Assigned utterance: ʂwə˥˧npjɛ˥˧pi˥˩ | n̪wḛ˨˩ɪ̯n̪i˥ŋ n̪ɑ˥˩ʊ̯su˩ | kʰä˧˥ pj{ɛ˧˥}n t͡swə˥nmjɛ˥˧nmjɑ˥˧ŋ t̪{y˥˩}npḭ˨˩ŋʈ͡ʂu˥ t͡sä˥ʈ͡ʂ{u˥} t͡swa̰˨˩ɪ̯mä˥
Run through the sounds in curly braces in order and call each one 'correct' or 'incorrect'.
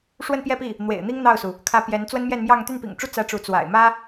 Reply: correct, correct, incorrect

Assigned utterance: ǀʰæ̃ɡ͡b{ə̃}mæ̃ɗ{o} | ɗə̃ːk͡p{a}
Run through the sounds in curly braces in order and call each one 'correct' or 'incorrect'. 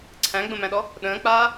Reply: correct, incorrect, incorrect

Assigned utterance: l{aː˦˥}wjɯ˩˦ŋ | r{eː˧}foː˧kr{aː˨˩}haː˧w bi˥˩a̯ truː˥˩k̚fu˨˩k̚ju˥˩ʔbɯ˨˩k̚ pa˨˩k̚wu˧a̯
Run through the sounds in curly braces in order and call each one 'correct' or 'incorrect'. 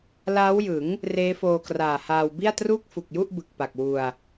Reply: correct, incorrect, correct

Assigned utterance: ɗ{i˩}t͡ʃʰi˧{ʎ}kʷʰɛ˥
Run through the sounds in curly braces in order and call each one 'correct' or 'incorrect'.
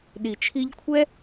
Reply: correct, correct

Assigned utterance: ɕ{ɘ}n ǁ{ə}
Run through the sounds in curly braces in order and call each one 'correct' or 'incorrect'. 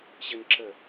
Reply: correct, correct

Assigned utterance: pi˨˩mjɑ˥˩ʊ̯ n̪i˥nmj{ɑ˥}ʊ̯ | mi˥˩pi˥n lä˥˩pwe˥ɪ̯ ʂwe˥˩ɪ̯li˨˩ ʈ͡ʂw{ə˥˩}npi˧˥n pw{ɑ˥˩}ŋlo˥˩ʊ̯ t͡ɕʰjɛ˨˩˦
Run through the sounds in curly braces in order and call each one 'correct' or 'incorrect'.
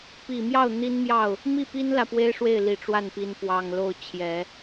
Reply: incorrect, incorrect, incorrect

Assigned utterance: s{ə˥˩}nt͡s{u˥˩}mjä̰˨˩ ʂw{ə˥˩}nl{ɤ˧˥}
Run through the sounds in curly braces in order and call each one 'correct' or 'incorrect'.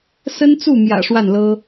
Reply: incorrect, correct, incorrect, incorrect

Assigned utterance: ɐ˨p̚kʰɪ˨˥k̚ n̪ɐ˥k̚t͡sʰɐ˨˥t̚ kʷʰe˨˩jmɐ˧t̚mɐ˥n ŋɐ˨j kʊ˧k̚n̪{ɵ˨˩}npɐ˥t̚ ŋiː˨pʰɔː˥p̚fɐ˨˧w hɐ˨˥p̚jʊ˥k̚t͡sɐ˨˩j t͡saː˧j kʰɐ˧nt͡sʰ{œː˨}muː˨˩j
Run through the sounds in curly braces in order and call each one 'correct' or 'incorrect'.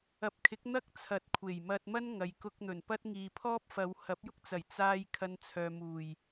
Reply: correct, correct

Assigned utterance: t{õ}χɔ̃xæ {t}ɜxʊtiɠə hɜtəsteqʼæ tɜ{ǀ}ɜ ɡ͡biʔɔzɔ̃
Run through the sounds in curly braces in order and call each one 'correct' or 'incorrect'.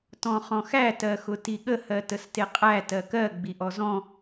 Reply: incorrect, correct, incorrect

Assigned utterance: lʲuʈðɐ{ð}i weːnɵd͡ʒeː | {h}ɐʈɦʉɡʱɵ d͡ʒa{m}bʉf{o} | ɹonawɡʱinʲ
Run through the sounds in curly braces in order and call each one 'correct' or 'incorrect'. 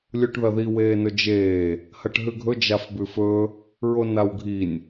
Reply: correct, correct, incorrect, incorrect

